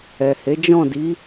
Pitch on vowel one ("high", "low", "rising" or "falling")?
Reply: low